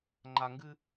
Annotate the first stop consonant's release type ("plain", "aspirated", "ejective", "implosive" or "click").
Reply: click